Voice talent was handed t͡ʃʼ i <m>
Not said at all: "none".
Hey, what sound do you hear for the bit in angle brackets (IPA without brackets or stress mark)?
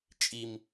m